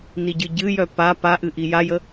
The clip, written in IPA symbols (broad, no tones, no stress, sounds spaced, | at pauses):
n i ɟ ɨ ɟ ɨ j œ p a p a ʔ ɨ ʔ i j a j ə